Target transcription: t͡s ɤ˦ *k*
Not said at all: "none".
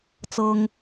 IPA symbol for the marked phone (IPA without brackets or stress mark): ŋ